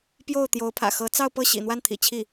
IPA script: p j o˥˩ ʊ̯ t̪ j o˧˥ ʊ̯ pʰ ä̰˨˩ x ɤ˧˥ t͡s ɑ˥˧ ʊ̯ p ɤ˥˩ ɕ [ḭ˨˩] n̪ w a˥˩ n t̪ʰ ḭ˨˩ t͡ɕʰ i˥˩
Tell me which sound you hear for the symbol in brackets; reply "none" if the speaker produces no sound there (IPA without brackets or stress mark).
ḭ˨˩